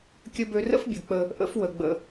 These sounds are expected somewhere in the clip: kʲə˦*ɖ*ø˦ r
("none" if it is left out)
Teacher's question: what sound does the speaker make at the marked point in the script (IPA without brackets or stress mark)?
b